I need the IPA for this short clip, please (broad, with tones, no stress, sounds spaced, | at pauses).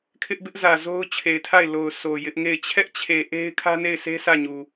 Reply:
kʰ ɪ˦ ʔ b ɪ˦ ʔ z ä˨ z o˦ ʊ̯ t͡ɕʰ e˨ ɪ̯ tʰ a˦˨ ɪ̯ l o˨ ʊ̯ s o˨ j ɪ˦ ʔ ŋ e˦˨ ɪ̯ t͡ɕʰ ɛ˦ ʔ t͡ɕʰ e˨ ʔ e˦ ɪ̯ kʰ ä˦ n e˦˨ ɪ̯ sʰ e˦ sʰ ä˦˨ ɲ u˨